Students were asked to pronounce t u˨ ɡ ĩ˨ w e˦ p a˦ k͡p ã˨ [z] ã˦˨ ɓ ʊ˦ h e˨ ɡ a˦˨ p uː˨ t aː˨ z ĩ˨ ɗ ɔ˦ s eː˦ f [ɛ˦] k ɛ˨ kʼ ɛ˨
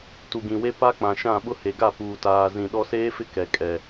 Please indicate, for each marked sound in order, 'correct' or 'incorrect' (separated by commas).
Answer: incorrect, incorrect